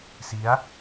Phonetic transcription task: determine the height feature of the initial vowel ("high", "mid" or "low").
high